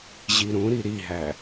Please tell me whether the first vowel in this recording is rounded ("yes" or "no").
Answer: no